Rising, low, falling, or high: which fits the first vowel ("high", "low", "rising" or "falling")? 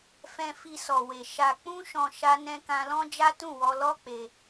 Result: low